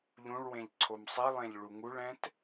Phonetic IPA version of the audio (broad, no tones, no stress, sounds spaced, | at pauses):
ʎ ũ ɭ w ẽ ʎ ǀʰ o m sˤ i lˠ ẽ ʎ ɭ u ŋ u ɭ ɛ̃ t